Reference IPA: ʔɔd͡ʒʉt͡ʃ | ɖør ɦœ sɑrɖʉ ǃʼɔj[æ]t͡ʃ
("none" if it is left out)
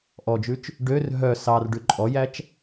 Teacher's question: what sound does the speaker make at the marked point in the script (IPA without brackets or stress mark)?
æ